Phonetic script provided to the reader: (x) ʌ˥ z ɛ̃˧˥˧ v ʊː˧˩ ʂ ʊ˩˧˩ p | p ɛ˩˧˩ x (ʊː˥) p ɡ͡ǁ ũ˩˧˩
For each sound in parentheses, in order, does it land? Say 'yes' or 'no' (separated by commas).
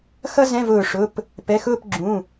yes, no